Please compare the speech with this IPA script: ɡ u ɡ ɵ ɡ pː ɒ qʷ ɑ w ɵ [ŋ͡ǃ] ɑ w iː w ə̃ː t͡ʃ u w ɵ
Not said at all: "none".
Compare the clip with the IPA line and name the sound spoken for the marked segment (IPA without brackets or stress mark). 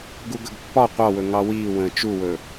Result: ŋ